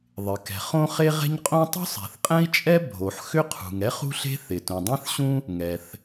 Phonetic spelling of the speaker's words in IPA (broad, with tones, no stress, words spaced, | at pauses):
ðˤɪ˩kɛ̤˩ χõ˥χe˥ ʁɛ̤˥ɲqʼõ˥ tˤṳ˥sˤɛ̤˩θqʼɛ̃˥i̯t͡ʃʼɛ˥ bʱo˩ħ xʏ˥qʰṳ˩ŋ ɛ˥χṳ˥ɬe̤˥ θɪ˩tũ˩dˤẽ˥θɕũ˥ | ŋɛ˩θ